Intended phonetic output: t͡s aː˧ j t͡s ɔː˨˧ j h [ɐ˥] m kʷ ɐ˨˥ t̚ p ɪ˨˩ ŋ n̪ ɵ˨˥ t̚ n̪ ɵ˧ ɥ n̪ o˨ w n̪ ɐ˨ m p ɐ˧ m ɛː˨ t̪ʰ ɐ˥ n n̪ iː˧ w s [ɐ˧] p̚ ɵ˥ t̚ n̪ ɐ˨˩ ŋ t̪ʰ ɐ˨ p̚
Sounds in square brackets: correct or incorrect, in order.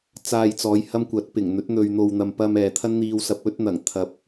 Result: correct, correct

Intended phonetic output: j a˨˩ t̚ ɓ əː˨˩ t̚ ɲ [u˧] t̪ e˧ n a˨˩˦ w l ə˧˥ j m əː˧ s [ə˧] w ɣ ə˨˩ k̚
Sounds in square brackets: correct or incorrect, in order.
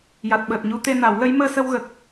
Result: correct, correct

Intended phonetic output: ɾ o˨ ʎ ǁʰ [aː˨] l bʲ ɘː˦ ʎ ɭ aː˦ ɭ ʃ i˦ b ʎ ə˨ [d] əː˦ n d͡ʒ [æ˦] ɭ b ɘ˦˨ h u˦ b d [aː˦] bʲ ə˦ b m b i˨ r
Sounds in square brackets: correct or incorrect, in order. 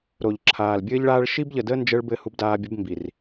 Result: correct, correct, incorrect: ə˦, correct

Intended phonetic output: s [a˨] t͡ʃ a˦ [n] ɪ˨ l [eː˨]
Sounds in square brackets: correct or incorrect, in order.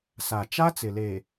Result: correct, incorrect: t͡s, correct

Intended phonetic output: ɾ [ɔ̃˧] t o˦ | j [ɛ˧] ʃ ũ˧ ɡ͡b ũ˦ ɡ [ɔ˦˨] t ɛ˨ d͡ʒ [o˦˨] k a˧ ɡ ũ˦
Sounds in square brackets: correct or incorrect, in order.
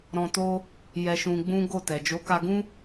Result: correct, correct, incorrect: o˦˨, incorrect: o˨˦

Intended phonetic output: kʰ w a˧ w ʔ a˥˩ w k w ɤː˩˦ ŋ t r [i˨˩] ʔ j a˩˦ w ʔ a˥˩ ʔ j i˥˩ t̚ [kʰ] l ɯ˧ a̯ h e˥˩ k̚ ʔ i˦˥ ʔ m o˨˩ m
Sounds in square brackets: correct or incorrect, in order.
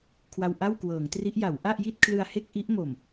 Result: incorrect: i˦˥, correct

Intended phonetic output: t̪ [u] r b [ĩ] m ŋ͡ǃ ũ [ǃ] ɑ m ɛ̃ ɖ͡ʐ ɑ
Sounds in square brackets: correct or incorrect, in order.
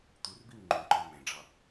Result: correct, incorrect: i, correct

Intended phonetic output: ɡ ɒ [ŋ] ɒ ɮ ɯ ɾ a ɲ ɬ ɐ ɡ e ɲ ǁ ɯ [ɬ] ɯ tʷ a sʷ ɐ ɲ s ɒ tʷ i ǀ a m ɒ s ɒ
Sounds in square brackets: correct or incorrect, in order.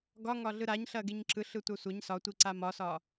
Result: correct, correct

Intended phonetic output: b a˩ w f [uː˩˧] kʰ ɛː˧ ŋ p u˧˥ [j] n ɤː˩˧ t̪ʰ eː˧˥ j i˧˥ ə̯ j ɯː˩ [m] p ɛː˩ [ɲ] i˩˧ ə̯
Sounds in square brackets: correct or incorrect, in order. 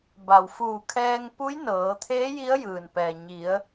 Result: incorrect: uː˧˩, correct, incorrect: n, correct

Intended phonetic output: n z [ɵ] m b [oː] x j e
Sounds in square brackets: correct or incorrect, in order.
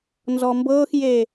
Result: incorrect: ɔ, incorrect: ɤː

